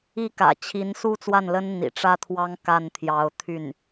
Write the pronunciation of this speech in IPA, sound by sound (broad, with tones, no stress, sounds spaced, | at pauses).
i˥˩ k ä̰˨˩ t͡ɕʰ i˧˥ n s u˥ t͡s w a˥˩ n l ə˥ n n̪ ḭ˨˩ ʈ͡ʂ ä˥ t̪ʰ w ɑ˥ ŋ k a˥˩ n t̪ʰ j ɑ˧˥ ʊ̯ t̪ʰ y˥˩ n